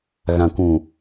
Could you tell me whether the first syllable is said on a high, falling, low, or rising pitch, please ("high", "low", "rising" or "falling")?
low